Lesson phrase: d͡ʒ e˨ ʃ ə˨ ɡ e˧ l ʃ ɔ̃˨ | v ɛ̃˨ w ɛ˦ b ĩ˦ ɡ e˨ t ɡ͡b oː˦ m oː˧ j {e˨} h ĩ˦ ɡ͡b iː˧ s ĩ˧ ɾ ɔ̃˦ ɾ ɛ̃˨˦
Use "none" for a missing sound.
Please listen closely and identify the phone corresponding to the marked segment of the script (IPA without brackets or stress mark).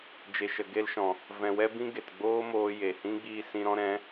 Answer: e˨